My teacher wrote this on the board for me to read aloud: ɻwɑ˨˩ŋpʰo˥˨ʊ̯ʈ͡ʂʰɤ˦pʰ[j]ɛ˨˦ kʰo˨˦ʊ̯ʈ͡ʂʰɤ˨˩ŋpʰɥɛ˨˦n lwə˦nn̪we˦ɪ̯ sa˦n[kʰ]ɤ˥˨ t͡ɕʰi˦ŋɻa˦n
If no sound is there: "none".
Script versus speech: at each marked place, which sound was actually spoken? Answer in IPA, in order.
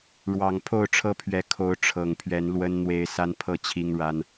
ɥ, pʰ

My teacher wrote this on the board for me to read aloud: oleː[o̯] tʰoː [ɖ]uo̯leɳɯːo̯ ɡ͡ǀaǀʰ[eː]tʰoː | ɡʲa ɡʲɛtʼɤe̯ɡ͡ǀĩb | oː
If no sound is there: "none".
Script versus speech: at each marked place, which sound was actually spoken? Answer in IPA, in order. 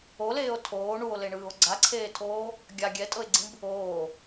o̯, ɳ, eː

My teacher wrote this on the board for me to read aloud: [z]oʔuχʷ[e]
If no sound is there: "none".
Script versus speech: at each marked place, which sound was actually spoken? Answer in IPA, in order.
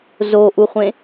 z, ẽ

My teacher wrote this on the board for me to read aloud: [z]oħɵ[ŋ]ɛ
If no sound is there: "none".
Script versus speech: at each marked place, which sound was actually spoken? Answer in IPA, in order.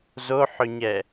z, ɲ

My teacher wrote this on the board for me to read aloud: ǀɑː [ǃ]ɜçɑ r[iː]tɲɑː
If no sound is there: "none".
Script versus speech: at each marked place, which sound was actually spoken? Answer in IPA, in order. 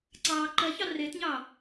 ǃ, ɪː

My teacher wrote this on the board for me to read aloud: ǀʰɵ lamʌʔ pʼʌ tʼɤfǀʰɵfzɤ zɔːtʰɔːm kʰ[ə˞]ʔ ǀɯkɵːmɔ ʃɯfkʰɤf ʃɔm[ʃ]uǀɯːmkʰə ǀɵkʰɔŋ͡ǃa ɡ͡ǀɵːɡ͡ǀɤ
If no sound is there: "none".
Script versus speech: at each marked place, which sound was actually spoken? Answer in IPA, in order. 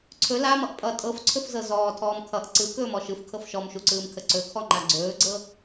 ʌ, ʃ

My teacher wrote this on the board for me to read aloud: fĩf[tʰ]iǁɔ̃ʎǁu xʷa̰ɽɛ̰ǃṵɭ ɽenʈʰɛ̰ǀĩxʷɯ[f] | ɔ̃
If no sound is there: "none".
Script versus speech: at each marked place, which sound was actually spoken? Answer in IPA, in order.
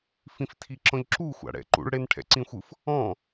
tʰ, f

